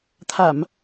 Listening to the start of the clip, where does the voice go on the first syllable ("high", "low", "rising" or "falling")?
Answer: low